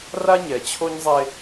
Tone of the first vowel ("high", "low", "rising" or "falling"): high